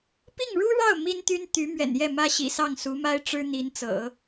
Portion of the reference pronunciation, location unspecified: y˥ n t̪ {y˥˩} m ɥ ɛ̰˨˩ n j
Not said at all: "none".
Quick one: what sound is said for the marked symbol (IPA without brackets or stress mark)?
y˧˥